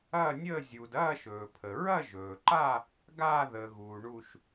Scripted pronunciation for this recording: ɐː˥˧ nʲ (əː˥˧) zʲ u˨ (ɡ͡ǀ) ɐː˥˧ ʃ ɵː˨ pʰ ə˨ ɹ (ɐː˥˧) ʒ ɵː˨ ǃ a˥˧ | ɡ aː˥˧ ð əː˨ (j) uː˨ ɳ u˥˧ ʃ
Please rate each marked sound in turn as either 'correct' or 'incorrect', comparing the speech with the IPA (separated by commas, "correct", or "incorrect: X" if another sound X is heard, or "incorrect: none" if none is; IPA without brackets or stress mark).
correct, incorrect: d, incorrect: ɐ˥˧, incorrect: ɣ